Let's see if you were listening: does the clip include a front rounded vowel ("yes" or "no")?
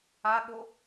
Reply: no